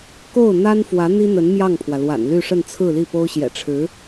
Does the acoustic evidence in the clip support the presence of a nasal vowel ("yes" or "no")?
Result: no